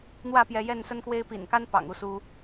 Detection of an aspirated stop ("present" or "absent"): absent